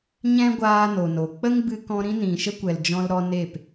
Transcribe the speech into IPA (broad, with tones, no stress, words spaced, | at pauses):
ɲɛ̃˦ɡʷaː˧ no˨no˨ k͡pə˦ŋbɨ˧kɔ̃˧ ɾĩ˦nĩ˨ʃə˦kʷɛ˨l d͡ʒɔ̃˦lɾɔ˦ne˦˨p